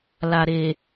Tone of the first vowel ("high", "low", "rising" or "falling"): low